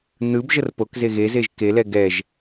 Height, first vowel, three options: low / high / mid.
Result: high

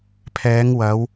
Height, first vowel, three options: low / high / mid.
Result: mid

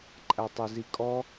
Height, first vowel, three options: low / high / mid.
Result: low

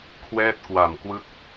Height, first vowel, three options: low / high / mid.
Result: mid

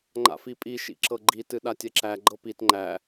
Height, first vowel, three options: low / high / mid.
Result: low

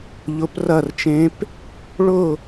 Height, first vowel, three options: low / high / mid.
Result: high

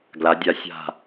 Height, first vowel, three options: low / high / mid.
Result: low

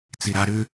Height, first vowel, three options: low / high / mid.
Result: high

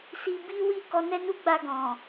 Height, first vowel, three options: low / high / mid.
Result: high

